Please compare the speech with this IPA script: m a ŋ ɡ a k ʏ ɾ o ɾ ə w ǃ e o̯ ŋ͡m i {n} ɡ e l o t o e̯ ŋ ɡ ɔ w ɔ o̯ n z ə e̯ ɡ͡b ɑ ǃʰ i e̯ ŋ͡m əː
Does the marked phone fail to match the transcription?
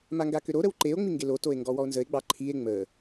yes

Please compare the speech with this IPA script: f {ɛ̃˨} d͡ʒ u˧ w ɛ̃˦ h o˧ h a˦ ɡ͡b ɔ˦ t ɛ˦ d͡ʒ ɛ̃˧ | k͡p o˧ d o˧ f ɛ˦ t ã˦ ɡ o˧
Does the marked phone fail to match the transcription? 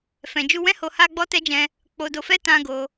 no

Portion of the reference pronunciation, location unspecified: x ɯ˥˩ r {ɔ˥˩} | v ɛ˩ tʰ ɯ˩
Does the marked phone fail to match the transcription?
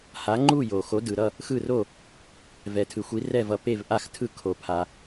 yes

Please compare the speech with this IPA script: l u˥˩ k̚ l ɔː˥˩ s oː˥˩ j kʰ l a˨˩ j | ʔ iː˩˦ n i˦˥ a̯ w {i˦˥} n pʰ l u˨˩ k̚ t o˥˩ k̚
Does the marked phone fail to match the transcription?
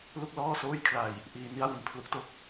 yes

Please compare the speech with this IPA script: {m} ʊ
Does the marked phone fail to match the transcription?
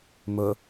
no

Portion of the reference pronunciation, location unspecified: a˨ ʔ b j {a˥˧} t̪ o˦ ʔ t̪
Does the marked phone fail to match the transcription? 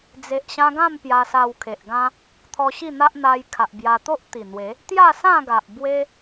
yes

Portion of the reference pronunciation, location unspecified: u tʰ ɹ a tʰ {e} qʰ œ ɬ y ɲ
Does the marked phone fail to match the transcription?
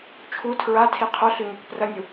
yes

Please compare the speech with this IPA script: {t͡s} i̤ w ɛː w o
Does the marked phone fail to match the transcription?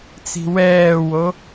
no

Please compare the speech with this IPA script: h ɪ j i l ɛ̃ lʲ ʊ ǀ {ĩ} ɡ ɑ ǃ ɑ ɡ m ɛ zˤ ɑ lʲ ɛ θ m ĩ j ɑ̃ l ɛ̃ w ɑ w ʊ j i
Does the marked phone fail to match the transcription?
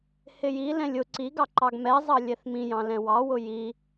yes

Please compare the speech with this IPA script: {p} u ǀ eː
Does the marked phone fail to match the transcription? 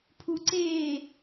yes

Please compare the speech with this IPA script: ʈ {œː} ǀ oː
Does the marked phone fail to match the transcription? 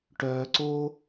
no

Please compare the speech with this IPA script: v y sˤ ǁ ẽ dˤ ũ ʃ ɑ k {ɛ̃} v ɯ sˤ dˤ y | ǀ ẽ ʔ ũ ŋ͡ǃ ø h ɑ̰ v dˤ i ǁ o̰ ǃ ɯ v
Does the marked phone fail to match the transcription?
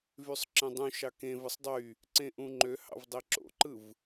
yes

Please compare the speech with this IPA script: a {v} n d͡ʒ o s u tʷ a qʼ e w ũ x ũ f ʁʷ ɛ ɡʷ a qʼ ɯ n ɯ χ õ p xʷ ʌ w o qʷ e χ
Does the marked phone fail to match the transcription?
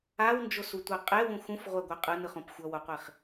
yes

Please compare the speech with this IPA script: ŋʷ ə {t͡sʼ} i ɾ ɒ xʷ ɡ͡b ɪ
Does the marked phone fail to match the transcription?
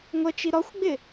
yes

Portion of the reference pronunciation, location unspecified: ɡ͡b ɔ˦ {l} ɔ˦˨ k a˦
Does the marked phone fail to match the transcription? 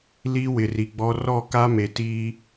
yes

